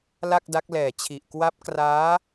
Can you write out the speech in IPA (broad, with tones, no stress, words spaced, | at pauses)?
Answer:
la˥˩k̚da˦˥k̚lɛː˨˩t͡ɕʰi˨˩ʔ kwa˦˥p̚kraː˦˥